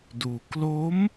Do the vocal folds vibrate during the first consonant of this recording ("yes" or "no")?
yes